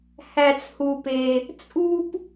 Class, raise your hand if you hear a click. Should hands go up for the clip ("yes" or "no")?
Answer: no